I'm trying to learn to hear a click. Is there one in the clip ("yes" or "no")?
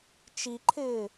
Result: yes